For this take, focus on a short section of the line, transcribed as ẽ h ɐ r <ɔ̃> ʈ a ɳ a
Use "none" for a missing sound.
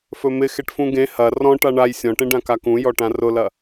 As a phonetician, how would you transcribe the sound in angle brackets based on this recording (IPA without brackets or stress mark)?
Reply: ɔ̃